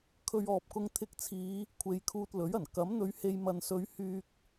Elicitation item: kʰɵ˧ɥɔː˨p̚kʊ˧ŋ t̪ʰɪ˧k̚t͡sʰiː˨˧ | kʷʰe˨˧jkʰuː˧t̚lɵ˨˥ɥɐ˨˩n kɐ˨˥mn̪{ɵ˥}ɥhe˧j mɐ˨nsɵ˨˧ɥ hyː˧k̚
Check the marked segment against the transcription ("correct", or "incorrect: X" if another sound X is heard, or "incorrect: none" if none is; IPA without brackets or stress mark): incorrect: ɵ˧